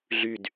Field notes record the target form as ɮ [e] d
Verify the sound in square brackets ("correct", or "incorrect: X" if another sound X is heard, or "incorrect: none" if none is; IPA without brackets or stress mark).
incorrect: y